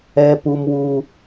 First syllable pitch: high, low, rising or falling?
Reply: high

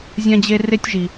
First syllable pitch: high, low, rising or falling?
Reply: high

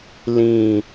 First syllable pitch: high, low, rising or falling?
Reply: low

